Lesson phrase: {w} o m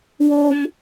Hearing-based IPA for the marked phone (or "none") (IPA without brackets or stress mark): w